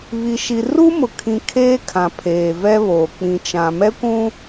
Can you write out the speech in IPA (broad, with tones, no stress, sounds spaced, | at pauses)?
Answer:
β i˨ ʃ i˨ r u˦ m ʊ˨ kʰ ĩ˨ kʰ eː˦ kʰ ã˨ pʰ eː˨ v ɛ˦ β oː˨ k͡p ĩ˨ t͡ʃ ã˨ m ɛ˦ kʷ ũ˦